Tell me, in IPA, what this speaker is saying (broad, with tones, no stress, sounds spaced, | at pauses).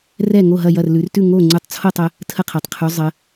r ɛ˥˨ ŋ o˥˨ ɦ ɐ˥˨ j ɐ˥˨ r l ʉ˩˧ r t ʉ˥˨ ŋ o˥˨ ŋ͡ǀ ʉ˧ tˤ t͡sʰ o˥˨ tˤ ə˧ | tʰ ə˥˨ qʰ ɛ˩˧ tˤ qʰ ʉ˩˧ zˤ ə˩˧